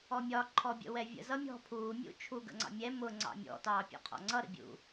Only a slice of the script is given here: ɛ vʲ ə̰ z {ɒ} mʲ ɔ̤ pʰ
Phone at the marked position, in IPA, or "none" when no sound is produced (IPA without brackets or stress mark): ʌ